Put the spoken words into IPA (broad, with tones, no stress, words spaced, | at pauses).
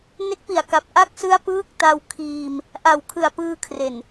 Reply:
ne˦˥k̚pi˨˩a̯ka˨˩p̚ ʔa˦˥k̚sɯ˦˥a̯ pɯː˦˥k̚ta˧wkʰiː˧m | ʔa˨˩wkʰɯ˨˩a̯pɯː˧kʰre˨˩n